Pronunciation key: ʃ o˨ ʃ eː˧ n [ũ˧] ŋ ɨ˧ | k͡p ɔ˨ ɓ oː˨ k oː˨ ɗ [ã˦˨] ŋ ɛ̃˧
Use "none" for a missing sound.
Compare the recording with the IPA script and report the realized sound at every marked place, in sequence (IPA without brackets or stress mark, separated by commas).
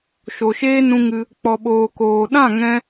ũ˧, ã˦˨